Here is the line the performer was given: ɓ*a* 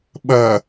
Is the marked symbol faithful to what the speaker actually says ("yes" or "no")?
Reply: no